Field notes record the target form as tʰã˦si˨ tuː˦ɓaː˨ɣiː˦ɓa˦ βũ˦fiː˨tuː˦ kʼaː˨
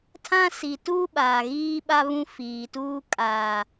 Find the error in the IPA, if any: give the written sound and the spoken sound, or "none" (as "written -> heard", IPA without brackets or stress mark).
none